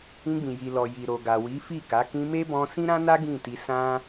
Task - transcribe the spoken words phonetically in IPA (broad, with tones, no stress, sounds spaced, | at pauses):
ĩ˧ ɡ͡b ĩ˨ j i˨ l ɔ˨ j i˨ ɾ o˨ ɡ a˨ w i˨˦ f i˦˨ k a˨˦ k ĩ˧ m e˦ b ɔ̃˧ s ĩ˦ ɾ ã˦ n a˦ ɡ ĩ˦˨ t i˧ s ã˦